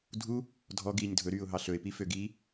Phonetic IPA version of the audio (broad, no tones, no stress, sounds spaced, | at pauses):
dʱ u | dʱ ɔ ɡ iː ɲ dʱ ɵ ɾ yː ʊ̯ ɦ ɑ ɬ ɵ ɪ̯ p i f ø ɡ iː